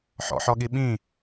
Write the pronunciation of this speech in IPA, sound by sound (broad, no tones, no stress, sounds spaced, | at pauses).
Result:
ħ ɔ̰ ħ ɔ ɠ i ɓ ĩ